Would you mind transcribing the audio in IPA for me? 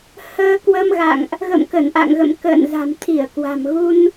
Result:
h əː˧ k w ə˧ m ɣ a̰˧˨ ŋ ʔ | ɣ ə̰˧˨ m k ə˧˩ n ʔ a̰˧˨ ŋ ɣ ə̰˧˨ m k ə̰ː˧˨ n z a̤˨˩ m t̪ʰ i˧˩ ə̯ k w a̤˨˩ m ɣ u˧ n

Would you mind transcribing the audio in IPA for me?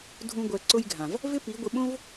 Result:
dʱ ũ˦ ɡʷ ɛ˧ ǀ ʊ˦ j ɡʱ ã˨ v | v ɪ˦ p i˨˦ ɡʷ ɪ˧ ɓ õ˦ v

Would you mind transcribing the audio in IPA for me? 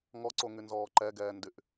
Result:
ŋ ɔ ǀ o ŋ y n z ɔː ǃ ɛ ɡ ɛː n d y ʔ

